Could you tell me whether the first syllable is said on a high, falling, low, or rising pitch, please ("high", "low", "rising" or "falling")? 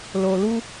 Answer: low